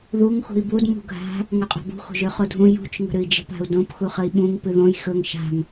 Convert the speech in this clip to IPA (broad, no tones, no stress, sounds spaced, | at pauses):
ð u ŋ x ṳ i̯ b u d m ṳ ɡʱ a̤ | ŋ ɵ qʼ a̤ b ṳ x o̤ ʒ ø χ o dʱ ũ j ṳ t͡ʃ ŋ ə̤ ɾ ɨ i̯ d͡ʒ ə̤ p a̤ u̯ d õ p x u χ ə i̯ ɓ ũ ŋ p ɨ ð õ j x ɵ ŋ ʃ a̤ ŋ